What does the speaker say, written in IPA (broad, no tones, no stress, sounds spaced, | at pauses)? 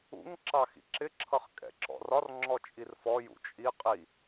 ṵ ŋ ǁ ɑ x ḭ ǁ ɪ ǁʰ ʌ χ kʼ ɛ̰ ǁ ɔ̰ r ɒ r ŋ͡ǁ ɔ t͡ʃʼ i r f ɔ j ṵ t͡ʃʼ i qʼ i